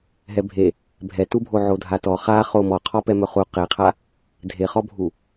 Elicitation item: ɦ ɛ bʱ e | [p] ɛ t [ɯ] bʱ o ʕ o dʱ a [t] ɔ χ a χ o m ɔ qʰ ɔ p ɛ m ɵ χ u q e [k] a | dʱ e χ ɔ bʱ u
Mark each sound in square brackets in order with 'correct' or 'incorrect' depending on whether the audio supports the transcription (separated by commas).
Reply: incorrect, incorrect, correct, incorrect